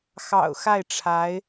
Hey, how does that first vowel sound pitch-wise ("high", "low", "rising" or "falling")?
low